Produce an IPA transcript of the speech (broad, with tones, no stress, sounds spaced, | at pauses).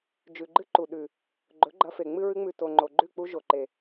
d͡ʒ ʉ˨ ɡ͡ǃ ɨ˦ ǃ u˨ ɗ ʉ˨ | ɡ͡ǃ ɵ˨˦ ɡ͡ǃ ɐ˧ f e˨ ŋ͡m ɨ˦ ɹ ɨ˦ ŋ͡m ʉ˧ t o˨ ŋ͡ǃ o˨ ɡ͡ǃ ʉ˦˨ k͡p u˦ ʒ o˨ ǃ e˨